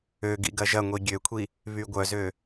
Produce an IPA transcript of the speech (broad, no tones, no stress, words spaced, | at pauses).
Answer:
øɡḭ ɡɐʒɐŋʷi ɡʲøkʷʰi | βyɡʷœzø